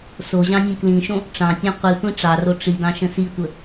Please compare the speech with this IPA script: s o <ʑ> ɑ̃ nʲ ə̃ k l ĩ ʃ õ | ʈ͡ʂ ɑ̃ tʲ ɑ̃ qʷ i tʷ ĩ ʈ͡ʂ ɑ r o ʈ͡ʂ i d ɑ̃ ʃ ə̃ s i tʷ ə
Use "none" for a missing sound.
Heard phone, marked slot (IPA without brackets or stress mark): ʑ